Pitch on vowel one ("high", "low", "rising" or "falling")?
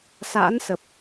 rising